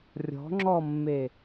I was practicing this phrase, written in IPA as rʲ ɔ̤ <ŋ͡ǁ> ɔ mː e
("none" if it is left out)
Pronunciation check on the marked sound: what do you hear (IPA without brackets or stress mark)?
ŋ͡ǁ